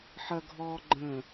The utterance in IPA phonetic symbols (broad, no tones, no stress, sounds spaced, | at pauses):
ħ ɐ ɡʱ ɔː ɡ͡ǃ ə̃